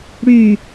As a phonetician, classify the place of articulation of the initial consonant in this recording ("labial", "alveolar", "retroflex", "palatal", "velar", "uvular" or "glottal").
retroflex